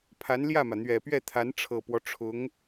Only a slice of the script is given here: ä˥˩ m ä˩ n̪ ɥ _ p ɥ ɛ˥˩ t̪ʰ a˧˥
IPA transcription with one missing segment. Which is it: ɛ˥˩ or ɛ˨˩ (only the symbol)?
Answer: ɛ˨˩